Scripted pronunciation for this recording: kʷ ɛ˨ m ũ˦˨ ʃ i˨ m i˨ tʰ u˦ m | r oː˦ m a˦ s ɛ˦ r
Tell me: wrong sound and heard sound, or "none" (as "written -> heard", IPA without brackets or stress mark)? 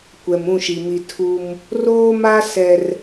none